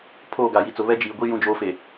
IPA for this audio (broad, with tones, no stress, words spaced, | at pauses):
pʰoː˦˨ɡa˨ji˨t͡sʊ˨ βɛ˦d͡ʒiː˨ɡʷi˦ jũ˦d͡ʒoː˦fe˨